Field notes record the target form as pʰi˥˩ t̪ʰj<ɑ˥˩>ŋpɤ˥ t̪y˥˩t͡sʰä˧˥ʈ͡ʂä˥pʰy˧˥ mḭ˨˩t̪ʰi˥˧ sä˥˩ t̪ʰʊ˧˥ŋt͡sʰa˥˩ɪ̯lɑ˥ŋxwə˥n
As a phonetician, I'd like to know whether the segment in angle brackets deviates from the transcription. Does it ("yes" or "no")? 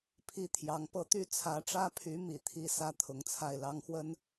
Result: yes